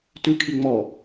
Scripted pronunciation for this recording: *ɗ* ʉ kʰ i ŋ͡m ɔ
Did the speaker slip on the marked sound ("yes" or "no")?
yes